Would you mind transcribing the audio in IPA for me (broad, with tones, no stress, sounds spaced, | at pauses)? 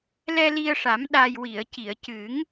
l ɛ˧ l i˧ ə̯ ʂ a˨˩˦ m ɗ a˨˩ j w i˨˩˨ ə̯ c i˨˩˨ ə̯ c ɨ˨˩˦ ŋ